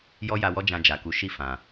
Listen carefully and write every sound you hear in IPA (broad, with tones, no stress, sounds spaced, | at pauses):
j ɔ˦ j a˧ w ɔ˦ d͡ʒ ã˧ d͡ʒ a˨ k u˨˦ ʃ i˦˨ f ã˨